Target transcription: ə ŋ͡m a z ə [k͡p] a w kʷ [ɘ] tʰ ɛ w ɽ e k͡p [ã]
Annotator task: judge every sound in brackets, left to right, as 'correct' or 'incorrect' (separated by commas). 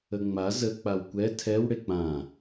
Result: correct, incorrect, correct